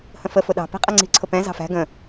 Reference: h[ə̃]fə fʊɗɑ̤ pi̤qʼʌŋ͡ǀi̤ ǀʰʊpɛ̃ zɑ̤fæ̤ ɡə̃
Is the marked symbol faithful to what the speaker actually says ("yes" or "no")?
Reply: yes